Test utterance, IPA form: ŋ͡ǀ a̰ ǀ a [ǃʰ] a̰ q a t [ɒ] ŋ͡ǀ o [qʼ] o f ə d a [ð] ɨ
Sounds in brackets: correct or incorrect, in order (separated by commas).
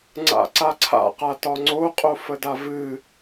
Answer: incorrect, correct, correct, incorrect